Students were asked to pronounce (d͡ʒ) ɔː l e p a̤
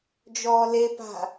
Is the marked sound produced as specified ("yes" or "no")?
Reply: yes